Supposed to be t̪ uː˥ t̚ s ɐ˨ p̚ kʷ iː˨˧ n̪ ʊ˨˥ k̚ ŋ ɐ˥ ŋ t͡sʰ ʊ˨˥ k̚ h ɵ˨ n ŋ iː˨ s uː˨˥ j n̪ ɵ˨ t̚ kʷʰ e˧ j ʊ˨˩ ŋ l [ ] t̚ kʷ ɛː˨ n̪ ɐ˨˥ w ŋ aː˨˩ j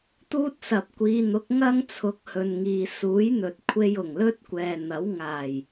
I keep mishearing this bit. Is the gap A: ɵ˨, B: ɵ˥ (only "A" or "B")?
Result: B